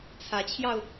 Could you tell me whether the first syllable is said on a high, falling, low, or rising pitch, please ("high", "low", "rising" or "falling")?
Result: rising